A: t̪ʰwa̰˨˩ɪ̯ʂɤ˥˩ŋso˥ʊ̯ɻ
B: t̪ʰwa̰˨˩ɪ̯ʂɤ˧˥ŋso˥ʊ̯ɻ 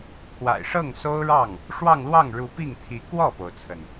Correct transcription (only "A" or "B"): A